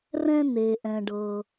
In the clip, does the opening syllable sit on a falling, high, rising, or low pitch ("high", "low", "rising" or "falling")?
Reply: high